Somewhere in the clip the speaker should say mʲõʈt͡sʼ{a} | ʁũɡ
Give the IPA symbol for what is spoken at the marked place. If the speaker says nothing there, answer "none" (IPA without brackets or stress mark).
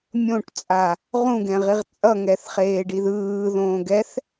a